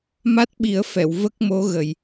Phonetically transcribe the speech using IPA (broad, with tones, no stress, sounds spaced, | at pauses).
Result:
m a˦˥ t̚ ɓ i˨˩˦ ə̯ f ɛ˨˩˨ w v ə˦˥ k̚ m o˧˥ ɣ ə˨˩ j